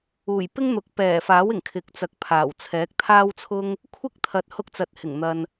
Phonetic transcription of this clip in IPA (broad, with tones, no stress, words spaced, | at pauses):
uː˨˩j pɪ˥ŋn̪ʊ˨k̚ pɛː˨˩faː˨˥w ɪ˨˩ŋ kʰɪ˨k̚t͡sɐ˨˥k̚pʰaː˨˩w t͡sʰɛː˨˥k̚t̪ʰaː˥wt͡sʰʊ˥ŋ | kʷʰɪ˥k̚t̪ʰɐ˨t̚ hʊ˧k̚t͡sɐ˨t̚hɪ˨˩ŋ n̪ɐ˨n